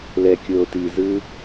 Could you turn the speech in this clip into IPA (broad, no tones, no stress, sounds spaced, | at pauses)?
l ɛ kʲ oː t i z ɯ